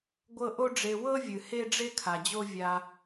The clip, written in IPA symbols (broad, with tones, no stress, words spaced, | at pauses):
ɡʷɤ˧ ʔo˦ɖ͡ʐe˧ wɤ˦vʲɨ˨ he˦ɖ͡ʐe˦kʰa˨ d͡ʑo˦ vʲa˧